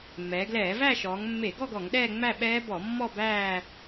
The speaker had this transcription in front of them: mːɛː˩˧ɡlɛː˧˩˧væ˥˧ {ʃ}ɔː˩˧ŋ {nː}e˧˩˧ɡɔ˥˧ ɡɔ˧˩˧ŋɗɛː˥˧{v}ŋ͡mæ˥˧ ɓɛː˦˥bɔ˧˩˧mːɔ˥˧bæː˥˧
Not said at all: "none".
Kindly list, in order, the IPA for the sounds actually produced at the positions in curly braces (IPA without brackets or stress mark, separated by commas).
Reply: ʃ, mː, none